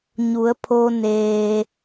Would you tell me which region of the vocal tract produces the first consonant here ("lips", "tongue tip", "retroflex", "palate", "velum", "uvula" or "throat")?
palate